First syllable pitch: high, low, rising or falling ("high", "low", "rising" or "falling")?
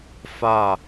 falling